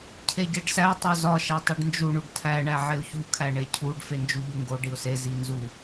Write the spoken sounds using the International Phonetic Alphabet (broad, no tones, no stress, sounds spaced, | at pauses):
cʰ e ɟ e ɖ s æ tˤ o z ɒ ʃ æ tˤ i ɖ n d͡ʒ u ɳ u ɖ tʰ æ ɳ æ ʕ e ʊ̯ ç u kʰ æ ɳ e cʰ u ɖ f e n d͡ʒ u ʎ u ŋ ɡ o ɖ i ʊ̯ s e z i n z u